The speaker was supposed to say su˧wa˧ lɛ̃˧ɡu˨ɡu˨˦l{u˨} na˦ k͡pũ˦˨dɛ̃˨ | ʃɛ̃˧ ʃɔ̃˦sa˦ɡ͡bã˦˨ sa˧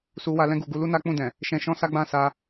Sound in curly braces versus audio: incorrect: u˦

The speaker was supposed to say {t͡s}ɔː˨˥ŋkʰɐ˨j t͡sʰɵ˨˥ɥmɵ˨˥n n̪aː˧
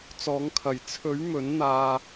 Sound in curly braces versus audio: correct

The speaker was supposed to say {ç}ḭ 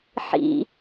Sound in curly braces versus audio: incorrect: ħ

